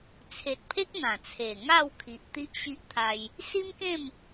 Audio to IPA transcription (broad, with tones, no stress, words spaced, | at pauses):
t͡sʰe˨t̚pʰe˦k̚ n̪ã˨˩t͡sʰe˨˩ ŋa˥˧wkʰi˨ʔ t̪i˦ʔɕi˦ʔ t̪ʰa˧j | si˦mkẽ˥˧m